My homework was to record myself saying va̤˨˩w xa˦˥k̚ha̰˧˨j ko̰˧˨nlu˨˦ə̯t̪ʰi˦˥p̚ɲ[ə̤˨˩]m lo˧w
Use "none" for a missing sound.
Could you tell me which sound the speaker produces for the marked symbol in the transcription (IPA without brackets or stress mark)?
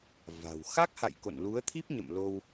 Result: ə̰˧˨